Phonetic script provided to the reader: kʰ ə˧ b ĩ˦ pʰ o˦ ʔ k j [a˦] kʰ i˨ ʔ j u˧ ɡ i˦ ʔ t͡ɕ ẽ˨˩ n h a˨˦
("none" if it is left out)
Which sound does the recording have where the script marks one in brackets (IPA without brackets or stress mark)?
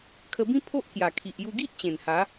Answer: a˨˩